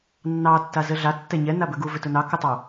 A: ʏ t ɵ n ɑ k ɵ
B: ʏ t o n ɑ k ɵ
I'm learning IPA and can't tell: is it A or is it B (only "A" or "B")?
A